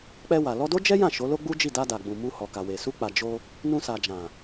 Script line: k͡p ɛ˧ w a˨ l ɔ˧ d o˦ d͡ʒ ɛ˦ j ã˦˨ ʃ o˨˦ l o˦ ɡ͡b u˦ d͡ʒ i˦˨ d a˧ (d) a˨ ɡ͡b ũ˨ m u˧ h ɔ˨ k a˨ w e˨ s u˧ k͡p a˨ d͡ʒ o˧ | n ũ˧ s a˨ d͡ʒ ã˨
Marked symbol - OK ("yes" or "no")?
yes